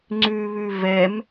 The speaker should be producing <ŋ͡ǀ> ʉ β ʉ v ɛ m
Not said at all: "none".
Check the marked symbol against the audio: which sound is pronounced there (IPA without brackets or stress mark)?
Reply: ŋ͡ǀ